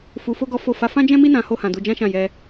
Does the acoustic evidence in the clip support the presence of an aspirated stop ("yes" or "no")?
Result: no